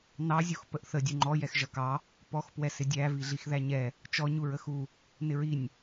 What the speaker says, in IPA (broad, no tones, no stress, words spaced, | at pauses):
nɑ zʲuxpəʔθə dʲuŋ͡ǃɔ jɛxʒʌkɑ | pɔx pwɛsɪdʲæ viɮixðæɲɛ | t͡ʃɔ ɲuɹəxu | nɪɹinʲ